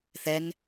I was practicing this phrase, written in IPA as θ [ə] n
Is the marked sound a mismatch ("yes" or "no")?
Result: yes